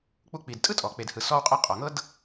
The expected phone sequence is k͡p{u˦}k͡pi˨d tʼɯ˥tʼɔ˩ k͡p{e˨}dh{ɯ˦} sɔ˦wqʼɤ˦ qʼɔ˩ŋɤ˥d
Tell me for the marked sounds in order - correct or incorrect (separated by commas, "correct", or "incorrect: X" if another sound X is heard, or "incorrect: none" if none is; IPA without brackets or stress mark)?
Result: correct, correct, incorrect: ɯ˨